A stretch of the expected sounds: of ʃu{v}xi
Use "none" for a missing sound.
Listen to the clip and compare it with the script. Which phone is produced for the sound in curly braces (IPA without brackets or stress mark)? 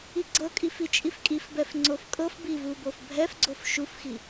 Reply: f